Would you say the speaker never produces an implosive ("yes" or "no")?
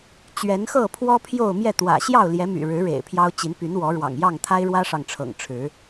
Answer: yes